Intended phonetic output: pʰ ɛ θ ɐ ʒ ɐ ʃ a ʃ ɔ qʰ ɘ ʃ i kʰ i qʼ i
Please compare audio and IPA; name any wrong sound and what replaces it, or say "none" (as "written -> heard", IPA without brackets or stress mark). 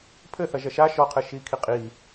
ɛ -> ɘ